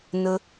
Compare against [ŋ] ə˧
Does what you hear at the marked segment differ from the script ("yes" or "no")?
yes